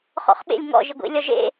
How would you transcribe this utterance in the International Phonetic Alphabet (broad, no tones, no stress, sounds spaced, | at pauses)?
χ ɔ̰ χ ɓ ḛ lʲ ŋ ɔ̰ ʒ i ɡʷ ḭ lʲ ɒ ʒ ḛ